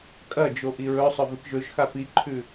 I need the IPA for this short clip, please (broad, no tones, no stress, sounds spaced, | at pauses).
kʼ ɐ d͡ʒ o ʔ i ɹ ɵ sˤ ɵ v ɨ k ʒ ɵ ʒ x a p i ǃʰ ʉ